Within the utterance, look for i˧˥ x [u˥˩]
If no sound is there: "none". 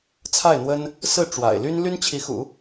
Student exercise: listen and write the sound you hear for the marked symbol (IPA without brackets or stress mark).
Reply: ṵ˨˩˦